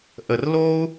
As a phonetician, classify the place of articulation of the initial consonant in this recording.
glottal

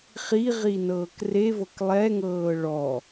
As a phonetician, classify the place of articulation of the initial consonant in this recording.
uvular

